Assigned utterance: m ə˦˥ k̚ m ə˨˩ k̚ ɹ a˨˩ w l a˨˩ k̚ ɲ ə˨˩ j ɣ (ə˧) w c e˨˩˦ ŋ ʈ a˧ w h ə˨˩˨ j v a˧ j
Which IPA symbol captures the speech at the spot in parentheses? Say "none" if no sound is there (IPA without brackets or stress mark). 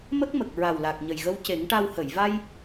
ə˧